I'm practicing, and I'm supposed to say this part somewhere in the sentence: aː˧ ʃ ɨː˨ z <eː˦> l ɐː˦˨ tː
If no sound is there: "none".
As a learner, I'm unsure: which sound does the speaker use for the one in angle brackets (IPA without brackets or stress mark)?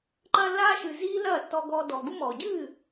iː˦